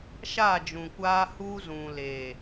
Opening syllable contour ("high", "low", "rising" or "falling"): falling